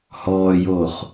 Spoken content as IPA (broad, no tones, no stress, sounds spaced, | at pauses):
h ɔː j oː χ